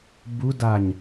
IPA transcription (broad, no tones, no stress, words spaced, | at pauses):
budaɲ